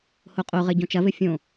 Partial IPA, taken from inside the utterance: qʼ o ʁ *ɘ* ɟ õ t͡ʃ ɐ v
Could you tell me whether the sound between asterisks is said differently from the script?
no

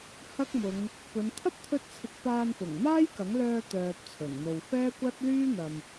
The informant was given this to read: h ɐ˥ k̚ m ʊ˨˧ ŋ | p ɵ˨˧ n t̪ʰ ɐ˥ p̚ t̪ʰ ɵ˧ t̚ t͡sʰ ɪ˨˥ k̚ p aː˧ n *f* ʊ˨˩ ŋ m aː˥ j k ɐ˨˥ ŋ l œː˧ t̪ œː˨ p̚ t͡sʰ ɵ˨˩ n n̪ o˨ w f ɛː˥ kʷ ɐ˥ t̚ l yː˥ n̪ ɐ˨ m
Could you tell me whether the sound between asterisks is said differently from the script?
no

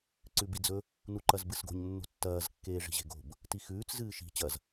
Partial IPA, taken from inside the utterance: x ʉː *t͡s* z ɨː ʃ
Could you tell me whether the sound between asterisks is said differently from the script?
no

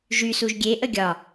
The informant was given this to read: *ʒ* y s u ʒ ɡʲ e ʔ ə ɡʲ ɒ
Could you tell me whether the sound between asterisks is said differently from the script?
no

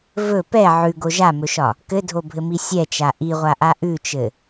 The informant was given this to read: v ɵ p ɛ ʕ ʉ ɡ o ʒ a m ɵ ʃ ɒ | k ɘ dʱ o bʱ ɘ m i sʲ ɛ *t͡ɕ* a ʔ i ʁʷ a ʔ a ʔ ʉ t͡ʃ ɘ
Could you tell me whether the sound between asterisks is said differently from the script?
yes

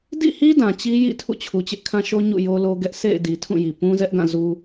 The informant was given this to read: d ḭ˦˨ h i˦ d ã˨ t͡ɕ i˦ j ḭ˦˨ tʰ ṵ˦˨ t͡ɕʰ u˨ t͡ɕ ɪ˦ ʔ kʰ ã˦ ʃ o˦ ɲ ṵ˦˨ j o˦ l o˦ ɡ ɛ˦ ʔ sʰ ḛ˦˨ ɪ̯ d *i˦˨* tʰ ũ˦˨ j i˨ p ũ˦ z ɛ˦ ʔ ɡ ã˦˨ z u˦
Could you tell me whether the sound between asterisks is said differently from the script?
yes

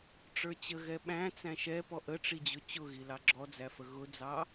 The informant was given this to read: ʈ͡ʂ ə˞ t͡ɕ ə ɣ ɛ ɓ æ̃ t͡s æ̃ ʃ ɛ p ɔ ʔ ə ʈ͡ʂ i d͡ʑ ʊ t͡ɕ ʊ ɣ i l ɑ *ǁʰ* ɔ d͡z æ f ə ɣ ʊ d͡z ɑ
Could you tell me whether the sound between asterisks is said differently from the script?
yes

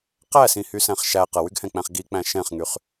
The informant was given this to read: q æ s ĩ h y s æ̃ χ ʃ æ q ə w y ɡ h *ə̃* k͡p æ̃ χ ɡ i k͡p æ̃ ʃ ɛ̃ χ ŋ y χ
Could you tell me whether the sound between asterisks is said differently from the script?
yes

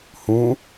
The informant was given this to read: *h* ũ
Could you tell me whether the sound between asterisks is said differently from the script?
no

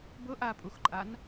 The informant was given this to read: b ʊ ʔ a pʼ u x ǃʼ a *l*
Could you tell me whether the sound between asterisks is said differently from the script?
yes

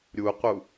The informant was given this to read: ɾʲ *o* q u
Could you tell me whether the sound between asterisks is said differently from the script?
yes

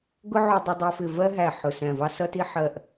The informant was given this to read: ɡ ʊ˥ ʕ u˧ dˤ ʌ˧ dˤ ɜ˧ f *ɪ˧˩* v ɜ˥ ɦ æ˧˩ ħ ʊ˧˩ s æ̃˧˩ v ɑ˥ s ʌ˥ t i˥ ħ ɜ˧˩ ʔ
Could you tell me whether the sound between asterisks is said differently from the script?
no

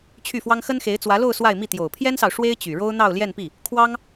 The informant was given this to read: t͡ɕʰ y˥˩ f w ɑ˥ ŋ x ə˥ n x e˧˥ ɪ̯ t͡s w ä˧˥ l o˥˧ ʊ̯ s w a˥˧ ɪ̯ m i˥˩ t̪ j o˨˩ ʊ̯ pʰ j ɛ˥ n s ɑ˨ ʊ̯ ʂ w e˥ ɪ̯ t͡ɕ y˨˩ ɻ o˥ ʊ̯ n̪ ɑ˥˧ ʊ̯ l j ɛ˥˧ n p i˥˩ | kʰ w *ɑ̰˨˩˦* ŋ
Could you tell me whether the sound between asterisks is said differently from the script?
yes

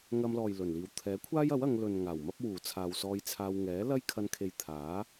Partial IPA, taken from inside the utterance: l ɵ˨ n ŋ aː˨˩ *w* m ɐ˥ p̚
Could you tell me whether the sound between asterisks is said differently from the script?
no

